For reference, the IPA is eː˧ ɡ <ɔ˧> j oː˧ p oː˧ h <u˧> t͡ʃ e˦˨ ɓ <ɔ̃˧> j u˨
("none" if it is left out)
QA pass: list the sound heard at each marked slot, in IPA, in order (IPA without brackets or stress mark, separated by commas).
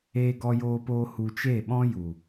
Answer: ɔ˧, u˧, ɔ̃˦